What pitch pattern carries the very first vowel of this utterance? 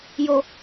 low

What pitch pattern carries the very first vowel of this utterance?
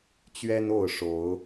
high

